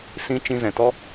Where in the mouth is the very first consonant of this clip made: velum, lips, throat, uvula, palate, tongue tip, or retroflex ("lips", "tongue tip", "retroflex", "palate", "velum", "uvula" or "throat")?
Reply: tongue tip